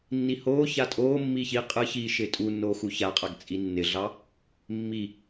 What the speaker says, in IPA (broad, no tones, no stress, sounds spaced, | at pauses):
nː i h oː ç a tʼ oː mː iː ç i qʼ ɯ ç iː ʃ ɪː tʼ u nː oː x u ç a qʼ a ɡ t͡sʼ i nː ɪ ɮ ɑ | mː i